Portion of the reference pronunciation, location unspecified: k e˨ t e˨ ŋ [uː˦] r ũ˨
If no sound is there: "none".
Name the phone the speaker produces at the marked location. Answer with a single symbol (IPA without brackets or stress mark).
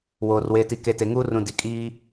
uː˦